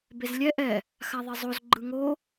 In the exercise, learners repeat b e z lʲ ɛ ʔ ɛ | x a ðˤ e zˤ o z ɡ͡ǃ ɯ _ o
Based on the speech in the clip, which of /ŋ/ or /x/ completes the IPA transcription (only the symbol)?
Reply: ŋ